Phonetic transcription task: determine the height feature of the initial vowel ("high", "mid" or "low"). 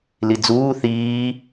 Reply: high